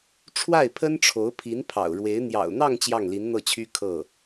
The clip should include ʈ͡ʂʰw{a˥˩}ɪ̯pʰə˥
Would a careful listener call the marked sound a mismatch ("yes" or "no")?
no